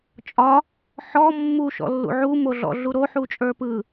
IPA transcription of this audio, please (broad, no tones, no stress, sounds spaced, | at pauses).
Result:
t͡ʃʼ ɒ | ħ ɔ mː u ʃ ɔ̰ lː ṵ ʕ u m o ɮ ɔ̰ ɮ u ɾ o ħ u t͡ʃʼ ə˞ p ɯ